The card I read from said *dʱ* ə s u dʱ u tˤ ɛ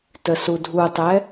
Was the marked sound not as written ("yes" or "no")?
yes